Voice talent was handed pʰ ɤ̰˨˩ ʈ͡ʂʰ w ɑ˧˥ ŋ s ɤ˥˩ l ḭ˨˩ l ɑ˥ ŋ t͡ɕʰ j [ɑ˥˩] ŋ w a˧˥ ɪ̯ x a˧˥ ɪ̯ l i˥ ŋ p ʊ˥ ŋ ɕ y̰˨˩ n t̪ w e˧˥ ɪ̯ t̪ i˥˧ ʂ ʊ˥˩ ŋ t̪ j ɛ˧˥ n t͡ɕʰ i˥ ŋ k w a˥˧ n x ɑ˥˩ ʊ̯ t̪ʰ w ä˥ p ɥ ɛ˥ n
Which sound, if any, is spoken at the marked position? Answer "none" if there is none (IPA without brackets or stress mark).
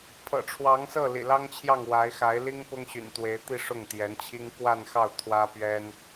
ɑ˥˩